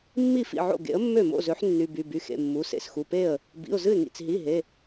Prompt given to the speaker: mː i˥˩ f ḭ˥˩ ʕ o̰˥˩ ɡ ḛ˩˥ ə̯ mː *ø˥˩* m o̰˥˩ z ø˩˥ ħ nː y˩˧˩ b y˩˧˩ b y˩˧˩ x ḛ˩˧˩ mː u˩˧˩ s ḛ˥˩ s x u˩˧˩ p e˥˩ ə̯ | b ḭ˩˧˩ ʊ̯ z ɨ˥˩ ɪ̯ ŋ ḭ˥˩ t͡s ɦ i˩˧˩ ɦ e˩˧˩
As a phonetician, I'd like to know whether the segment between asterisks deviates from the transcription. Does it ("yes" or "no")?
no